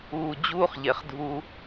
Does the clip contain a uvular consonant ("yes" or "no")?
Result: yes